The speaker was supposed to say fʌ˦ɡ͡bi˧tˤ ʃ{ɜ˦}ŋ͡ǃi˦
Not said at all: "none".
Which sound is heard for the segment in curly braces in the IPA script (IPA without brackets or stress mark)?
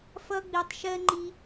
ɜ˦